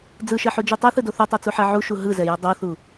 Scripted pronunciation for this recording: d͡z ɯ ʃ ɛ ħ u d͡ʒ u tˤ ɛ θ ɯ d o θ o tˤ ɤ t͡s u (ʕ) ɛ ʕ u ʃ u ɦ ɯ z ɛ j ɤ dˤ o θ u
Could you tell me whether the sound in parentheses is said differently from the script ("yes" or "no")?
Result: yes